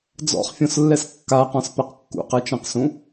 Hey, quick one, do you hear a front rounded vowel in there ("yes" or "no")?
no